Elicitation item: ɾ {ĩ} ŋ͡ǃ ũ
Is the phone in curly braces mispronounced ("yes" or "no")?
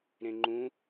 yes